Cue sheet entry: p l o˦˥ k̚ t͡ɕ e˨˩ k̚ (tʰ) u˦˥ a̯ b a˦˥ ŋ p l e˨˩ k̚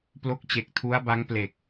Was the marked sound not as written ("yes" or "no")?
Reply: no